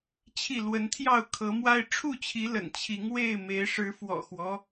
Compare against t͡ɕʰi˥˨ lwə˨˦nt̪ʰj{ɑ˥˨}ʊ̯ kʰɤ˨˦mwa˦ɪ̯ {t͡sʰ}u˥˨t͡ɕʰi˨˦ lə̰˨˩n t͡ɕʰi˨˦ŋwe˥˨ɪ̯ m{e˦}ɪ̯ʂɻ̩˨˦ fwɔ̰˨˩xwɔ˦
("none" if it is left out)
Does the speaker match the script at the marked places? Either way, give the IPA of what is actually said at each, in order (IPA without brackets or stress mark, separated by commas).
ɑ˥˨, ʈ͡ʂʰ, e˨˦